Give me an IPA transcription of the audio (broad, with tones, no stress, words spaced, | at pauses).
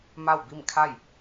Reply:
ma˥˨wbi˥˨mkʰa˥˨j